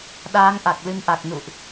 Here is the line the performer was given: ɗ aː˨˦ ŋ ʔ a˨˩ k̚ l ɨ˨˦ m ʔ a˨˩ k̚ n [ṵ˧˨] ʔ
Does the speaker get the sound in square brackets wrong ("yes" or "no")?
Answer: no